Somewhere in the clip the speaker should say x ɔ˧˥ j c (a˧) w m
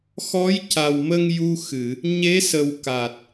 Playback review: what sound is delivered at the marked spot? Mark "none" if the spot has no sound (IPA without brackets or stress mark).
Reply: a˨˩